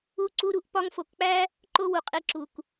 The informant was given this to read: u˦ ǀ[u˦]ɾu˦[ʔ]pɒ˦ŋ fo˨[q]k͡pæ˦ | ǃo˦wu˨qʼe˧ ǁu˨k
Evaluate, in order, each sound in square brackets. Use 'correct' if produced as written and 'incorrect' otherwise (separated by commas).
correct, correct, incorrect